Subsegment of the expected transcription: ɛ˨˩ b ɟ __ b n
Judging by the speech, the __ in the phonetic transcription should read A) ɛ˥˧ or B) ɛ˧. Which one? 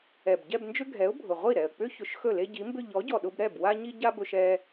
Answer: A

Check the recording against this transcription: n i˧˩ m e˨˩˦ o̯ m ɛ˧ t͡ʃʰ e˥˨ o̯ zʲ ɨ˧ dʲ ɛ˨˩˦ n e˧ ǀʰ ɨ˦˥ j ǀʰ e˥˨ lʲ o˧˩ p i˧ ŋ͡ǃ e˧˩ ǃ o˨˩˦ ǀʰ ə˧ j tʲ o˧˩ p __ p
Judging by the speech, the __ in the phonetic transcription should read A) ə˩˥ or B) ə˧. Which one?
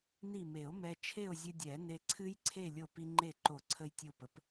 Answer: A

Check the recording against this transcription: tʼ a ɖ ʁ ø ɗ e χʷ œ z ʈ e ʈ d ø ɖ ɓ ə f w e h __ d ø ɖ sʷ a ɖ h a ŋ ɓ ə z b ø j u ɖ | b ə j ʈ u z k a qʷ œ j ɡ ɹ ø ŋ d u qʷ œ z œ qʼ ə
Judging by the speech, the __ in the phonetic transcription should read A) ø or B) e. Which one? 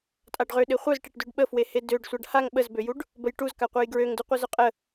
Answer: B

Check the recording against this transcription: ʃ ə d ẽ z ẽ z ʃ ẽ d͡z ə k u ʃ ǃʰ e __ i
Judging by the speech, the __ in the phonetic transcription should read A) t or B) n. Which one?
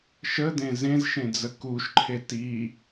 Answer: A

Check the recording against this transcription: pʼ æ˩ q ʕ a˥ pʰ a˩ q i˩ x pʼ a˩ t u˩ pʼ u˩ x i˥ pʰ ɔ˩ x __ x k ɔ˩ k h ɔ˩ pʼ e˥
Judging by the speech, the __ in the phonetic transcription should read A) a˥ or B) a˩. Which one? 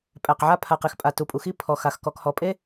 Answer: B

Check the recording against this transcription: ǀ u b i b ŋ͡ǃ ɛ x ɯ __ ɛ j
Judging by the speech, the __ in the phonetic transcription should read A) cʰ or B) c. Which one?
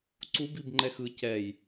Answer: B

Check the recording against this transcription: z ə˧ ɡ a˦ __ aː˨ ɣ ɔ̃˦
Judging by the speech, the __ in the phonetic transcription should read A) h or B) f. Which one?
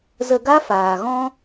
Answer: B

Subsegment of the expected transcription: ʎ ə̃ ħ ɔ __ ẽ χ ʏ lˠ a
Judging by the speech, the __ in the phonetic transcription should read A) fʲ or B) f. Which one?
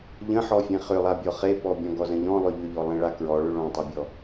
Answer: A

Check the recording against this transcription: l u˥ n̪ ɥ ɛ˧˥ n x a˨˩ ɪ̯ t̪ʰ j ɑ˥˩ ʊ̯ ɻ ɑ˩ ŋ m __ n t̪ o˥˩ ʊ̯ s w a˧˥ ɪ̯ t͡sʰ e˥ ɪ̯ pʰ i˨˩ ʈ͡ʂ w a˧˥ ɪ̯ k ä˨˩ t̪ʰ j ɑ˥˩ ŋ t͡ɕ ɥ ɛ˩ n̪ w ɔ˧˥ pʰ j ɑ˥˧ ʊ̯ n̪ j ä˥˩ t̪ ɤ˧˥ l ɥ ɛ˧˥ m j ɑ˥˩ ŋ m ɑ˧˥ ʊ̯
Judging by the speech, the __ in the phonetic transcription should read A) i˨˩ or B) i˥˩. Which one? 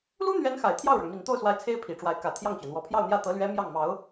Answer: A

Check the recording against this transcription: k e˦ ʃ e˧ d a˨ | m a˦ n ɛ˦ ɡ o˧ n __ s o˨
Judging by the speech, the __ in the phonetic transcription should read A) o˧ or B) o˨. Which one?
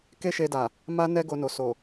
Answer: B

